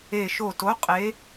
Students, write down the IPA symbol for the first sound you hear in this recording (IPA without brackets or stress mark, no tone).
e